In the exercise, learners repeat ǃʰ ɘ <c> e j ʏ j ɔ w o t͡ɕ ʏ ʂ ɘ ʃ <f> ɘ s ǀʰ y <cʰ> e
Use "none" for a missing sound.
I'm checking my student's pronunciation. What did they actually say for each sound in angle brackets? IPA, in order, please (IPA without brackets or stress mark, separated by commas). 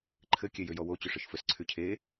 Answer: kʲ, f, cʰ